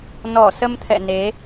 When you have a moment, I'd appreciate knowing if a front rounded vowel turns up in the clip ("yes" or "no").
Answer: no